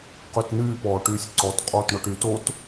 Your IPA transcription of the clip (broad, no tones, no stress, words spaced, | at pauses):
qøtnyː pɔːʈyːsʲǀɔt qʼoːtɳɔʈy tot